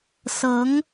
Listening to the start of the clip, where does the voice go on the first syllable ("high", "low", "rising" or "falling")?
rising